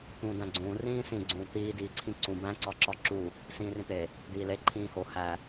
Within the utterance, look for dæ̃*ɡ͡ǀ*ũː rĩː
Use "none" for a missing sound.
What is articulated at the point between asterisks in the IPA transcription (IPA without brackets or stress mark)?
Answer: ɡ͡ǀ